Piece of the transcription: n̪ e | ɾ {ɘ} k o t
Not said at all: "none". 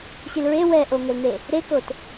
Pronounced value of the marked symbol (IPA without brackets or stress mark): e